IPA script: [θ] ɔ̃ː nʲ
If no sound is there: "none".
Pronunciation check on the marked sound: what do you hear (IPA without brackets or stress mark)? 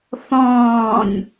θ